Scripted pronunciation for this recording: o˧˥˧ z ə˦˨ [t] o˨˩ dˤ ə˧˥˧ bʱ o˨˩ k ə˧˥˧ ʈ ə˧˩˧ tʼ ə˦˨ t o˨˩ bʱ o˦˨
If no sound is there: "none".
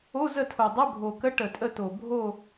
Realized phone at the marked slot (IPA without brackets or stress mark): tʰ